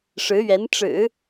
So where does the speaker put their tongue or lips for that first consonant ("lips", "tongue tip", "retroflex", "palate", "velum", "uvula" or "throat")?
retroflex